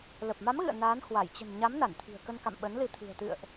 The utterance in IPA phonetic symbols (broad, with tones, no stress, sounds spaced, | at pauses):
l ə˨˩ p̚ m a˨˦ m ɣ ɨ̰˧˨ ə̯ n aː˨˦ n h w a˧˩ j t͡ɕ ə̤˨˩ n ɲ a˨˦ m n a˧˩ n t̪ʰ i̤˨˩ ə̯ k ə˧ n k a̰˧˨ m ɓ ə˨˦ n l ɨ˧ t̪ʰ ɨ̤˨˩ ə̯ t̪ ɨ̰˧˨ ə̯ ʔ